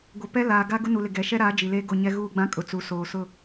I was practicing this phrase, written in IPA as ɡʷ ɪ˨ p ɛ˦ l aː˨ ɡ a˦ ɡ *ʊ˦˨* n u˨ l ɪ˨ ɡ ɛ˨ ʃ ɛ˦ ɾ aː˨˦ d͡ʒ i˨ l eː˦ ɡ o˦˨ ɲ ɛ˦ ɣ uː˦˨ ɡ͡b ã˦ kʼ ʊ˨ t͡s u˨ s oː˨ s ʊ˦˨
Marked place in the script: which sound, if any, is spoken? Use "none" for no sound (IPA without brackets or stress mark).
ʊ˦